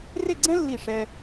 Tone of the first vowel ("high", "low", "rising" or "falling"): falling